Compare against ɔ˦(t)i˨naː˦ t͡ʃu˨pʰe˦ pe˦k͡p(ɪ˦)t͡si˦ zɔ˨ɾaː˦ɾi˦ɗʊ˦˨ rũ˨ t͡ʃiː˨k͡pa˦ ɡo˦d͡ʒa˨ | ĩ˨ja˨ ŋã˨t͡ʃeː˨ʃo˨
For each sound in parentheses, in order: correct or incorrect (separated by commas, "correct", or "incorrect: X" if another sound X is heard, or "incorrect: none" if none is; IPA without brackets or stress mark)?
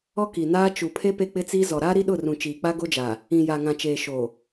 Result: incorrect: k, correct